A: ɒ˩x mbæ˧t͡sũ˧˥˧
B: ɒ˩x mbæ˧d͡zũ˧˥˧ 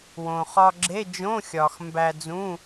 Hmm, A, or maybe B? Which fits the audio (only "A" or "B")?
B